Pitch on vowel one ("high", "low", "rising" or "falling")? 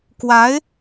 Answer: rising